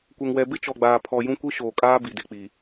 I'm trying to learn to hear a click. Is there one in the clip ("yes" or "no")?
no